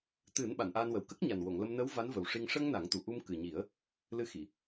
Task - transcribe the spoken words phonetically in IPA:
t̪ ɨ˨˩˦ n ɓ a˨˩˨ n ʔ aː˧ n w ə˨˩ w k ə˦˥ k̚ ɲ a˨˩ n w o˨˩˨ ŋ l ə˧ m n ə˧˥ w v a˧˥ n v ə˨˩ w ʂ i˧ ŋ ʂ ə˧ ŋ n a˨˩˦ ŋ t̪ u˨˩ ʔ u˧ m k ɨ˨˩ ɲ i˨˩˦ ə̯ | l ɨ˧˥ x i˨˩˨

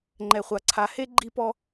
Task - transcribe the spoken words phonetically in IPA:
ŋ͡ǃ ɛ˨ χʷ a˨ ǀʰ a˨ h e˦ ɡ͡ǃ i˦ p ɔ˦

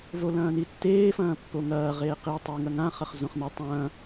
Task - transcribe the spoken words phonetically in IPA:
v o l ɐ̃ː n i tː eː f ɐ̃ː pː o ŋ ɐː ʁ eː q i tˤ i ŋ ɐ ŋ ã χ ɐ χ z õ χ n ɐ tˤ ɐ̃ː

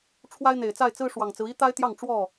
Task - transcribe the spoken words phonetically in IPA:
ʈ͡ʂʰ w a˦ ɪ̯ n̪ e˨˩ ɪ̯ t͡s a˥˨ ɪ̯ t͡s ɹ̩˦ ʂ w ɑ˨˩ ŋ t͡s ɹ̩˦ i˦ t̪ a˦ ɪ̯ t̪ j ɑ˥˨ ŋ ʈ͡ʂ w ɔ˥˨

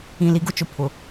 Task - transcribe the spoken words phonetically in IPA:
ĩ˨ l i˨ ɡ ʊ˦ t͡ʃ ʊ˨ pʰ ʊ˨

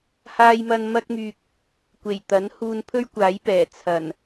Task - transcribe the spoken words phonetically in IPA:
h aː˧ j m ɐ˧ n m ɐ˥ k̚ m yː˧ k̚ | kʷ e˨˩ j t̪ ɐ˨˥ n h uː˧ n pʰ ɵ˥ ɥ kʷ aː˨˥ j p ɛː˨˩ t͡sʰ ɐ˨˩ n

